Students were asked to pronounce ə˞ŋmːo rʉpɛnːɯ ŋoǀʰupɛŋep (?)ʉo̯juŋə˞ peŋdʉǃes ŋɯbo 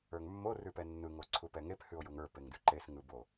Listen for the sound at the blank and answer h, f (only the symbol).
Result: h